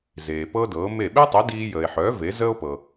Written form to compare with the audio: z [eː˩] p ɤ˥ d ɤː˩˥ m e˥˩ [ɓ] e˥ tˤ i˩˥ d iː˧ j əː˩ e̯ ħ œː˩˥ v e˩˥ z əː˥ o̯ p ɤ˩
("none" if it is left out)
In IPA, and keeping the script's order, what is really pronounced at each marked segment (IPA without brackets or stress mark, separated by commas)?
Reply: eː˩, ɓ